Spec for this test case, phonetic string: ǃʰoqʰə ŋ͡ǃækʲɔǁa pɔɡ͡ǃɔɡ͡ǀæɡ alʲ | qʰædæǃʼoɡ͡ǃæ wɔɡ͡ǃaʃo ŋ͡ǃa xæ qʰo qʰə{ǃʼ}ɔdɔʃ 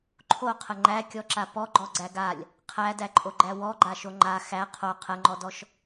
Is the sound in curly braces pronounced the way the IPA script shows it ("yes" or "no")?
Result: no